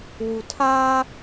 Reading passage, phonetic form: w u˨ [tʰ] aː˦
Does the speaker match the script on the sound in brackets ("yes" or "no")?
yes